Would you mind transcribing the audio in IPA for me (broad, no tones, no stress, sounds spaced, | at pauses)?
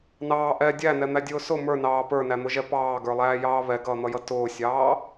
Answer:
n ɑː ʔ ɛ dʲ æ n ɛ n̪ æ dʲ ʊː s ʊ m ə˞ n ɑː p ə˞ n æ n̪ ʊ ʒ ɛ p ɑː ɡ ə˞ lˠ æː j ɑː β ɛ ɡ ʌː n̪ ʌ j ʌ t ʊː sʲ ɑː